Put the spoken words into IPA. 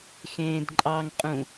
x ẽː d ǃʼ ɑ ŋ qʼ ũ

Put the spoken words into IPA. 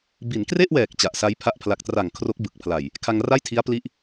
b i˩˦ n k r e˥˩ ʔ w ɛː˨˩ k̚ t͡ɕ a˨˩ ʔ s a˦˥ j pʰ a˥˩ ʔ pʰ l a˨˩ k̚ t r a˨˩ ŋ kʰ r o˦˥ k̚ b ɯ˨˩ k̚ pʰ l a˨˩ j | kʰ a˧ ŋ r a˥˩ j tʰ i˦˥ a̯ p l i˦˥ ʔ

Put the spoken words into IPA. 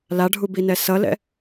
l a ɖʱ u b i n ɛ s ʌ l ɛ̰

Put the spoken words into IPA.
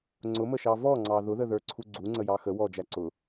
ŋ͡ǀ ʊ m ə ʃ ɑ v ɔ ŋ͡ǀ ɑ ð ʊ ð ə ð ə˞ ǀʰ u ɡ͡ǀ u ŋ͡ǀ ə j ɑ x ə w ɔ d͡ʒ æ ǀ ʊ

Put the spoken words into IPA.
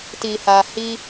t i˨ h a˨ h i˧

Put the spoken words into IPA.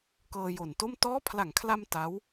k ɤː˧ j o˨˩ n t o˥˩ m t ɔː˦˥ pʰ l a˩˦ ŋ kʰ l a˧ m t a˦˥ w

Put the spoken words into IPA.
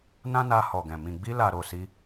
n ã˦ n a˧ h ɔ˨ ɡ ɛ̃˨ m ĩ˨ ɡ͡b i˧ l a˨ ɾ o˨ s i˧

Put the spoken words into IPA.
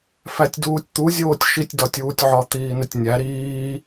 f æ tʲ d uː tʲ t̪ u zʲ oː tʲ ʃ i tʲ d ɒ tʲ uː tʲ ʕ ɒ t̪ iː n e tʲ nʲ æ ɾ iː

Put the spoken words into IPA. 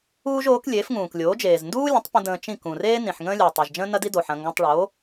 uː˥ ʒ oː˩˥ k lʲ eː˩˥ f ŋ ũː˩ k lʲ oː˩˥ d͡ʒ eː˩ z n d uː˥ lʲ ə̃˩˥ tˤ p ə̃˧ d ə̃ː˧ t͡ʃ ĩ˥˩ k ũ˩ r eː˥ n ĩ˩ ħ ŋ ə̃ː˥ lʲ uː˩ tˤ e˩ ʒ d͡ʒ ə̃ː˥ n ɐ˥ d i˥ d o˩ ħ ɐ̃˧ ŋ ɡ ɐ̃˧ tˤ ɭ oː˩˥

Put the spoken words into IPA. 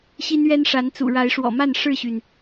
ɕ i˦ n ɥ ɛ˦ n ʂ a˨˦ n t͡s ṵ˨˩ ɻ a˨˦ ɪ̯ ʂ w ɔ̰˨˩ m a˥˨ n ʂ ɻ̩˥˨ ɕ y˩ n

